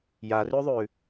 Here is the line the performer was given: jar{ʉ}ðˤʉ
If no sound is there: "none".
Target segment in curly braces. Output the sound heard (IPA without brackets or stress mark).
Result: ʉ